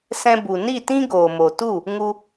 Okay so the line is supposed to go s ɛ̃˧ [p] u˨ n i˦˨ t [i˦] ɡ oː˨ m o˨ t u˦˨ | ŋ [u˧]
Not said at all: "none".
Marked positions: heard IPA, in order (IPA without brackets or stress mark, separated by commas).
b, ĩ˦, u˧